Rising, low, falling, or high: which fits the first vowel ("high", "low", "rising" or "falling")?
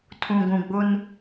low